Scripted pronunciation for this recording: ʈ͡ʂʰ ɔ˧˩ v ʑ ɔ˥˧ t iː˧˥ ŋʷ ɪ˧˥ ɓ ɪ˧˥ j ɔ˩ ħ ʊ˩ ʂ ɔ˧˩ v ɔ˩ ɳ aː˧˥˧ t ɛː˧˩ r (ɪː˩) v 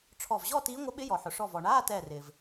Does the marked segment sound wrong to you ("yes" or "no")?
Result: no